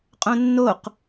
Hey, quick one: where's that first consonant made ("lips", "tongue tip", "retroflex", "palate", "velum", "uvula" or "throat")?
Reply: uvula